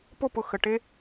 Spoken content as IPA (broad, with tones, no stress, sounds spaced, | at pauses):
p o˦˨ p ʊ˨ x ə˨ ʈ e˦